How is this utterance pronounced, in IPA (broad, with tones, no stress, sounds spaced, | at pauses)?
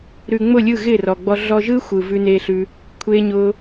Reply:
ɾ ʉ˨ ŋ͡m ʊ˦˨ lʲ ɯ˦˨ ɣ ɪː˦˨ r ɔ˨ ɡ͡b ɔ˧ ɮ ɔ˧ ʒ ɯː˦ xʷ ɯː˧ v ʉ˦ n eː˦ ɬ ʉ˦ | kʷʰ eː˦ ɲ ʊː˦